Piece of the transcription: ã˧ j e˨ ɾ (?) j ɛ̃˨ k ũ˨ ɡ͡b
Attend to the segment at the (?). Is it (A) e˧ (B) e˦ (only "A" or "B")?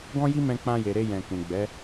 A